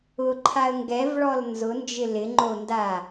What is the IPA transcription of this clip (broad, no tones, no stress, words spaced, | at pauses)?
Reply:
ʊǃʰaə̯ ŋɡɛvɭɔl nzʊnd͡ʒɪ lɪŋ͡ǃonda